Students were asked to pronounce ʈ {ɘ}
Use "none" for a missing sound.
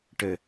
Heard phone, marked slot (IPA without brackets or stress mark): ɘ